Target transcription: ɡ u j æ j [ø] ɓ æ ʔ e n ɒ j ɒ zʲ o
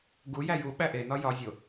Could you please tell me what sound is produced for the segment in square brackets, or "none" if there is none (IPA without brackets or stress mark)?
u